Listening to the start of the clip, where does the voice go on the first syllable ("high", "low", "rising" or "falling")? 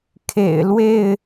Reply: low